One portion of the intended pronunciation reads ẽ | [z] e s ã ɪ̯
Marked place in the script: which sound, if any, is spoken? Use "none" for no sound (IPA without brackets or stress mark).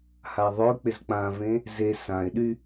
z